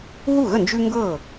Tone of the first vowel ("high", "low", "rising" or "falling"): falling